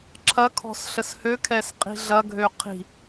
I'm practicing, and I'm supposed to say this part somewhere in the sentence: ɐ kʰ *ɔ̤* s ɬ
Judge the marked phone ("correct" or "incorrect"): correct